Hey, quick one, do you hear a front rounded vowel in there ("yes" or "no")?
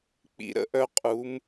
yes